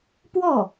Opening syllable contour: falling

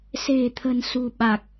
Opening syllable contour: low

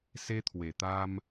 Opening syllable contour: high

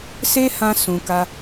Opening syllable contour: high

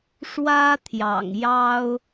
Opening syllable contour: high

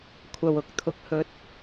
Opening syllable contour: low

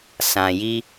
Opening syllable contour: low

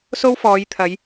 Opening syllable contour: high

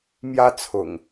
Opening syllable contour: high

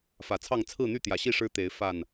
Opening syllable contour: low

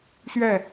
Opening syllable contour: falling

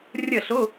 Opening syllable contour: falling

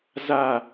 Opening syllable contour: falling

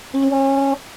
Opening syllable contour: high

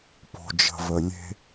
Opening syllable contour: low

